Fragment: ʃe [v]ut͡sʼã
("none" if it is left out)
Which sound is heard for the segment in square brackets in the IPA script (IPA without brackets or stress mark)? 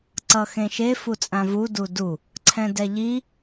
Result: f